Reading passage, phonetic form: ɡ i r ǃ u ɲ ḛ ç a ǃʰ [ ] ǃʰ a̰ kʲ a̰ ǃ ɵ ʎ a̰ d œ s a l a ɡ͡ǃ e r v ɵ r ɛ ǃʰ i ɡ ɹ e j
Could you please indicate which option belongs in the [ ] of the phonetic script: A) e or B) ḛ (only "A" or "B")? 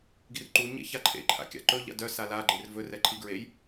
B